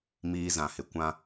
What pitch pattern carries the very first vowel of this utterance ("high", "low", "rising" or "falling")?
high